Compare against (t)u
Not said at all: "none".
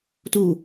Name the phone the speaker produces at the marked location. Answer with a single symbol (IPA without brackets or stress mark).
t